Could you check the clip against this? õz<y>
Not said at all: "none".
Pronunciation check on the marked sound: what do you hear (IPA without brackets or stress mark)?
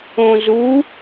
u